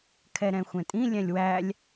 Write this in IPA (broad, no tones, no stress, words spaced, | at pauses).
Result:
kʰɛɾɛ̃xʷɛ̃tʼĩ lʲɛ̃lʲwælʲ